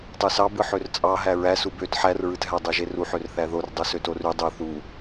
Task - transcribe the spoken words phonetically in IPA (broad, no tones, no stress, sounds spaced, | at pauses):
tˤ y s ɑ b ɯ ħ ø r t͡sʼ ɑ ɦ æ ɹ æ s u b ø t ħ æ r ɹ ɯ t ɦ æ dˤ ø ʒ e r u ħ ø r θ æ ð o r dˤ u s ø t o r y dˤ ø θ u